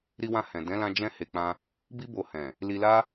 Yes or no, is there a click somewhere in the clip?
no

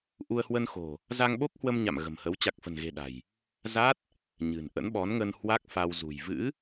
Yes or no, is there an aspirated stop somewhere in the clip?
no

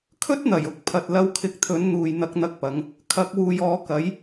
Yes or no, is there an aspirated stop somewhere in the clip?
yes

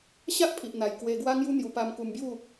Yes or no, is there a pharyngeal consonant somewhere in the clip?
no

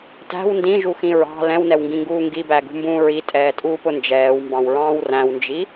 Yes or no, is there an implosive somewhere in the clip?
no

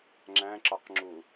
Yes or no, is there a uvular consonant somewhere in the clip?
yes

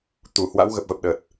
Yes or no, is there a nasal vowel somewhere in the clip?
no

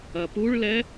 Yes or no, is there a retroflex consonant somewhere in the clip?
yes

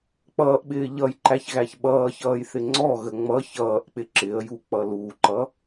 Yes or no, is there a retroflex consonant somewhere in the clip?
no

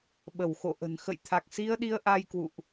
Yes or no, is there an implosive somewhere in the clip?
yes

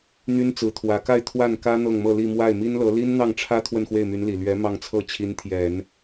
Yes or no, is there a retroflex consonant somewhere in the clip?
yes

